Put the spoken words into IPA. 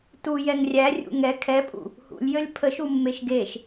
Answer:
t u j ɛ ŋ rʲ æ rʲ ṵ ŋ ɛ kʰ ɛ pʼ ṵ | h ṵ lʲ j ə lʲ pʰ ə ʃ u mː e ʃ ɡ e ʃ

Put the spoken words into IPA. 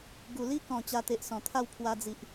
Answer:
ɡ u˨˩ l i˦ k ɔ̃˨˩ t͡ɕ a˧ t̪ e˨ ʔ s ɔ̃˨˩ t̪ʰ a˥˧ w pʰ w a˧ d͡z i˨ ʔ

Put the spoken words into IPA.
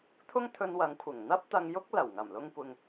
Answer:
t̪ʰ ʊ˥ ŋ t̪ʰ ɵ˧ n w ɐ˨˧ ŋ kʷʰ ɪ˨˩ ŋ n̪ ɐ˥ p̚ t̪ ɐ˧ ŋ j ʊ˥ k̚ l ɐ˨˩ w ŋ ɐ˨˩ m l ʊ˧ ŋ kʷ ɪ˨ ŋ

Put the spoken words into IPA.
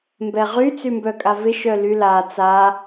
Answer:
m b ɛ ʁ y t͡s y m b œ kʼ a v ɪ ʃ œ l y l a t͡s a

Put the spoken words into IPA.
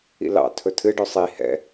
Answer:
ḭ l ɑ̰ tʰ ɵ tʰ ɨ ɖ ɵ sˤ i h ɛ̰

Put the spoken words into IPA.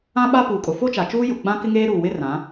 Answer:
ã˦ ɓ a˦ p uː˨ kʼ ʊ˨ f o˦ t͡ʃ a˨ t͡ʃ uː˦ j ʊ˨ ɡ͡b ã˦ k ɪ˦ ŋ eː˦ ɾ uː˨ w ɪ˦ r ã˨˦

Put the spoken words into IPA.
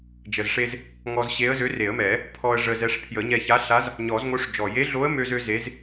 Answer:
d͡ʒ ə˨˩ z ʂ e˧ z | ŋ ɔ˧ z ɕ e˧˥ ə̯ z ø˧˥ r e˨˩˦ ə̯ m ɛ˨˩˦ | pʰ ɔ˧ ə̯ ʐ ə˧ z ɛ˧ ʂ pʰ j ə˨˩˦ ɲ ɛ˧ ç a˧˥ ɬ a˧˥ z | ɲ ɔ˨˩˦ z ŋ o˧˥ ʂ d͡ʒ ɔ˨˩ j e˧˥ ɮ o˧˥ ə̯ m ø˧ z ø˧ z e˧˥ z

